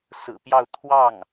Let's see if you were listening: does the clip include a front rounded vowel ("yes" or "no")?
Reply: no